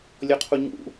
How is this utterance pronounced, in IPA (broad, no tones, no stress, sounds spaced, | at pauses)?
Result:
lʲ ɔ qʰ u ɲ ṵ